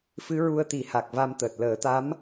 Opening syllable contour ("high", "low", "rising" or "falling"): rising